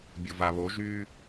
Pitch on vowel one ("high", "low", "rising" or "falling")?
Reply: low